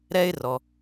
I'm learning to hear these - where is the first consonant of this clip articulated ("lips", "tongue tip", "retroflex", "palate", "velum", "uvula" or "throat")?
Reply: tongue tip